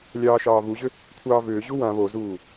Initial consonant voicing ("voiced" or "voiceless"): voiced